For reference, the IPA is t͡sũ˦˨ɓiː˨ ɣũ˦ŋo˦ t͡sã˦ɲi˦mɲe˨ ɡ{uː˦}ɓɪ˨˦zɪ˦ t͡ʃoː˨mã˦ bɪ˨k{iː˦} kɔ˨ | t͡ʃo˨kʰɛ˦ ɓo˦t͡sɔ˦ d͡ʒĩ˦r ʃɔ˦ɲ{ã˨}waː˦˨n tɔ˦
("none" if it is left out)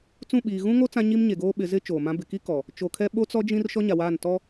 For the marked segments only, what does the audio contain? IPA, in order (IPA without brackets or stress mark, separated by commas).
oː˦, i˦, a˨